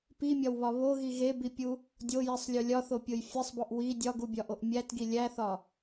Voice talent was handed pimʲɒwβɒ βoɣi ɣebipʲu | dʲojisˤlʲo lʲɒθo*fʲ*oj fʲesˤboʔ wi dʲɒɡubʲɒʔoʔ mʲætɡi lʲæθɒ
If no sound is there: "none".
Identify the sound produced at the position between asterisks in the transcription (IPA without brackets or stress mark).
pʲ